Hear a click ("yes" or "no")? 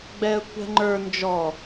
yes